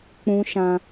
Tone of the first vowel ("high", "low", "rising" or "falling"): high